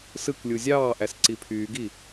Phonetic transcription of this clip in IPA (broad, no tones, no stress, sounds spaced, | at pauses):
s ɯ k lʲ u zʲ ɑː ʔ æ s ǀ i pʰ yː ɡ i